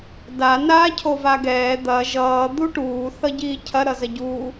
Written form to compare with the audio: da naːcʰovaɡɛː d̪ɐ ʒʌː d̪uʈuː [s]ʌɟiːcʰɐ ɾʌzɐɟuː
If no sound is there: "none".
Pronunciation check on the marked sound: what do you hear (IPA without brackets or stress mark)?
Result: θ